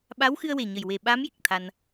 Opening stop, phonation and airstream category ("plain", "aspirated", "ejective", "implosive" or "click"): implosive